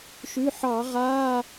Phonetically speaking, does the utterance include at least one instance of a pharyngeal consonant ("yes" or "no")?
yes